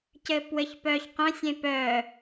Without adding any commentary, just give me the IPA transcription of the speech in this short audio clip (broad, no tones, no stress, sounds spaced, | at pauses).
c ɘː p w ɘ ç p œː ç q œ̃ sʲ ẽ p œː